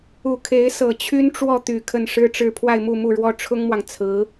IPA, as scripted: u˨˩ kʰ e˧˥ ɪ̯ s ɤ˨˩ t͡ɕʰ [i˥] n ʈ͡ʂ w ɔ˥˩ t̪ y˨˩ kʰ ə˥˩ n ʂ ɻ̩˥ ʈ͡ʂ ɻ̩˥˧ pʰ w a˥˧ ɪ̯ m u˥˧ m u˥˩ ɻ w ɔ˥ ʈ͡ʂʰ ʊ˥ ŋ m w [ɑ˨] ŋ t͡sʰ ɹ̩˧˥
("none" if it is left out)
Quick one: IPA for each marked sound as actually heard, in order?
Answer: y˥, ɑ˨

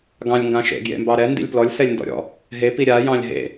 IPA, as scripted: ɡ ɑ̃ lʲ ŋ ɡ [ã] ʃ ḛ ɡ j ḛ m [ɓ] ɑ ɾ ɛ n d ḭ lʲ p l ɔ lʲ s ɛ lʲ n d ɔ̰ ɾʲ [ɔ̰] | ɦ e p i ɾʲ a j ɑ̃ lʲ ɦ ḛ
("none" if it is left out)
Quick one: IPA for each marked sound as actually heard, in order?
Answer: ã, b, ɔ̰

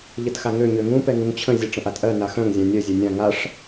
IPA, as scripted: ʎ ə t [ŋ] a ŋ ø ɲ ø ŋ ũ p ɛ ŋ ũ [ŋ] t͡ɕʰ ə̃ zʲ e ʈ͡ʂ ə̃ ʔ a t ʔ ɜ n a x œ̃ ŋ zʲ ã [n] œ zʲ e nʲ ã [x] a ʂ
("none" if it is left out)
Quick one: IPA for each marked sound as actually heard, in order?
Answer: x, ŋ, nʲ, ŋ

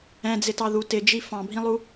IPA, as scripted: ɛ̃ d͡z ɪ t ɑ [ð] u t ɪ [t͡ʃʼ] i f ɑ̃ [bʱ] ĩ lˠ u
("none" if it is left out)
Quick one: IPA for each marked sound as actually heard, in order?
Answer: ð, d͡ʒ, bʱ

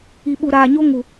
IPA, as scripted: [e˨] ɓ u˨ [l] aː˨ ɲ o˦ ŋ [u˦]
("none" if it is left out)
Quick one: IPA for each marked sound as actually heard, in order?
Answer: i˨, ɾ, u˨

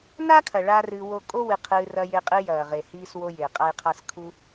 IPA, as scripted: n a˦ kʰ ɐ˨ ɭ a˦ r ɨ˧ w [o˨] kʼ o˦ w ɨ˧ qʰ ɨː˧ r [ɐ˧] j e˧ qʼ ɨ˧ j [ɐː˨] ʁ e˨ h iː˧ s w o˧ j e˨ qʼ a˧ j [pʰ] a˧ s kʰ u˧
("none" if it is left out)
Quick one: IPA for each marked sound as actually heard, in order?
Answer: o˧, ɐ˧, ɐː˨, qʰ

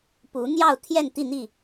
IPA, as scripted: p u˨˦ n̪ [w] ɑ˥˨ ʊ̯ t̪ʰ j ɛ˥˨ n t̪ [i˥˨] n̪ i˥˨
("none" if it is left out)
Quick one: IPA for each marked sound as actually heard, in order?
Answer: j, i˥˨

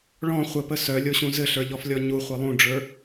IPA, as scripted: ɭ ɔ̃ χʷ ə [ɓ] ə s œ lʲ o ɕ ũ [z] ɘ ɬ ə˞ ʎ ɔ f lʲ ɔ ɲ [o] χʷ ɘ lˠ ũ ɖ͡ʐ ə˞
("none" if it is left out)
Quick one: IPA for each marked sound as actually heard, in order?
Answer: p, z, u

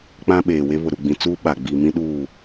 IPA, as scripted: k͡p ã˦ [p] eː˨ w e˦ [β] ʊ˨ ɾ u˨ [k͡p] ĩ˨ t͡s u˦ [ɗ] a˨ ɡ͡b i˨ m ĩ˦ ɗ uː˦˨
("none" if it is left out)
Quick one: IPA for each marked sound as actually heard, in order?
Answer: ɓ, β, ɡ͡b, ɓ

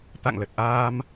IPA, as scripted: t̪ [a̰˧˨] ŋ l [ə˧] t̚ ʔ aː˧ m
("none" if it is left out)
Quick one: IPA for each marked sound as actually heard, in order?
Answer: a̰˧˨, ə˨˩

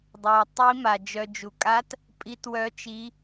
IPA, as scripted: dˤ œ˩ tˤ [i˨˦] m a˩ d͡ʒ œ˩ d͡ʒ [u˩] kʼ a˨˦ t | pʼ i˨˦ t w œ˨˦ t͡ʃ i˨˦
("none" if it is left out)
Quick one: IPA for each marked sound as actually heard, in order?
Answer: i˨˦, u˩

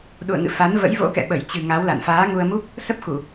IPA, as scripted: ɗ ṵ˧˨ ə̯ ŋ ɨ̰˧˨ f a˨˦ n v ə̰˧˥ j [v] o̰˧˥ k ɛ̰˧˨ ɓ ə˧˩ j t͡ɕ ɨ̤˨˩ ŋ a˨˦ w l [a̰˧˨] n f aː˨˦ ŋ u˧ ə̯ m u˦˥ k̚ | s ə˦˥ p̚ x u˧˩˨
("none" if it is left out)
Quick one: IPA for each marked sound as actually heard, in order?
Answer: v, a̰˧˨

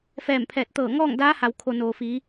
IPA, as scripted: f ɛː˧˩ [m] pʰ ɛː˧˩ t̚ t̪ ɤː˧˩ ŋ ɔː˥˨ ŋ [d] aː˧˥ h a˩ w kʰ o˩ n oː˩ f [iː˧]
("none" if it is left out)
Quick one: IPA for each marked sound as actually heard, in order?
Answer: m, d, iː˩˧

